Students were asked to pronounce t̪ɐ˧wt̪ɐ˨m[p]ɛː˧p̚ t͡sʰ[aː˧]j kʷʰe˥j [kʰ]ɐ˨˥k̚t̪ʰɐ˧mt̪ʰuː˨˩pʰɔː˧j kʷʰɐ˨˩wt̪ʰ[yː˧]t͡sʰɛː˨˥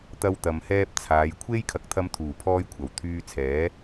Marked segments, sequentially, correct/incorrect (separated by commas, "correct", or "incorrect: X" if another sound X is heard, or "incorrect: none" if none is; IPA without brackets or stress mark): incorrect: h, incorrect: aː˨˧, correct, correct